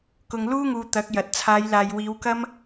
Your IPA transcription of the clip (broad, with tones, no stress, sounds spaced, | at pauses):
k ʊ˨ ŋ l uː˥ ŋ uː˨ t̪ ɐ˨˥ k̚ j ɐ˨ t̚ t͡sʰ aː˨˧ j l aː˨ j w iː˨˧ w k ɐ˥ m